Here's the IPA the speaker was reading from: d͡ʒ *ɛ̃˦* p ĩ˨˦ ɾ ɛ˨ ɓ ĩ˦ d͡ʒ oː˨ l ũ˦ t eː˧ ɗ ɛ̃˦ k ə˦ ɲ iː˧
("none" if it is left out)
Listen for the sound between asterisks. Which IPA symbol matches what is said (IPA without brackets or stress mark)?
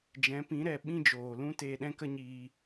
ɛ̃˨˦